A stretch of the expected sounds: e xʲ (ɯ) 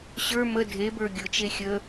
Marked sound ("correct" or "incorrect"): incorrect